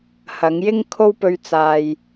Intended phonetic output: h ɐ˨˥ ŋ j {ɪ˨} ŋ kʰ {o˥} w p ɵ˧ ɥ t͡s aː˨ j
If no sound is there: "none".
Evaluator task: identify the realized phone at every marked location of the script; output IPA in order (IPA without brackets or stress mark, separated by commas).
ɪ˥, o˥